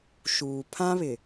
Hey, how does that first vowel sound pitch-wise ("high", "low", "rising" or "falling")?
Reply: low